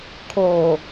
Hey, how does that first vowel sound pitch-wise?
low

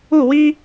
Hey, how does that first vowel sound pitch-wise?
falling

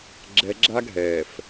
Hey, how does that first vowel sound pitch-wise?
low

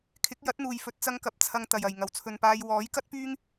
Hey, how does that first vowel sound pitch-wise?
rising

